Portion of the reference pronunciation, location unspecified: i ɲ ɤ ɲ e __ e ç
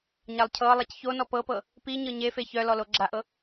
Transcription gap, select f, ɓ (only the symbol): f